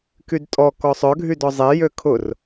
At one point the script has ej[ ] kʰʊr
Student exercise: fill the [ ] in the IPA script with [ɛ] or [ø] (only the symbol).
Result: ø